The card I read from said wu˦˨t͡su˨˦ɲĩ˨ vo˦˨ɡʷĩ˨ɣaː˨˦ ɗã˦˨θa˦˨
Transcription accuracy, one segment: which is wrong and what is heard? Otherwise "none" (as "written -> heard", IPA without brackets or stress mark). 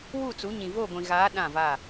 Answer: θ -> v